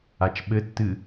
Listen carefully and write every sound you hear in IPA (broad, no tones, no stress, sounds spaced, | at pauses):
a t͡ʃ ɓ ɘ tː ɨ